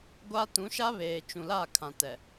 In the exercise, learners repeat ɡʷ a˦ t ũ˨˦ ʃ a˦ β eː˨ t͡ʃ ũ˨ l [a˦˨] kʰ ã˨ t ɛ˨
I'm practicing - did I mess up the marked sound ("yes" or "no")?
no